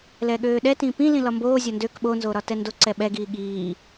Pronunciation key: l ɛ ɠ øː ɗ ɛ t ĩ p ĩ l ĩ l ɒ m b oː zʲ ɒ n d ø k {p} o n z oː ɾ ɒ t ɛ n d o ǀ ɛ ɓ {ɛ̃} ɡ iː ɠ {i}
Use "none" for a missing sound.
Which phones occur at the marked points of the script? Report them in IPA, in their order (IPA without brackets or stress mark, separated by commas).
ɓ, ɛ, iː